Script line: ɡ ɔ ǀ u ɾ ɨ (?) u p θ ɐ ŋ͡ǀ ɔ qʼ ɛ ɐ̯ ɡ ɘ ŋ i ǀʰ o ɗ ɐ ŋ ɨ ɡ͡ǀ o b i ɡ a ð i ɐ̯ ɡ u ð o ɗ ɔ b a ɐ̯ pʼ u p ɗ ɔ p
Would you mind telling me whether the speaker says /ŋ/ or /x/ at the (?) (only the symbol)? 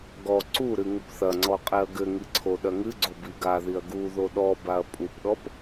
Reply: ŋ